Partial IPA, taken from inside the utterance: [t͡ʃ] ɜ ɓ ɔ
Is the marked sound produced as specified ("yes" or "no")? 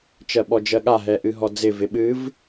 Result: yes